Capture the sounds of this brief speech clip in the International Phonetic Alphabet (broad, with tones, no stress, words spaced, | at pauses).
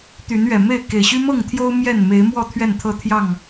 t̪y˨˦nɥɛ˨˩me˥˨ɪ̯ ke˨˩ɪ̯ɕy˦mɤ˥˨ŋt̪ʰjo˦ʊ̯ mjɛ˥˨nme˨˦ɪ̯mwɔ˥˨ t̪ʰɥɛ˥˨nt̪ʰɤ˥˨ t̪ʰjɑ˥˨ŋ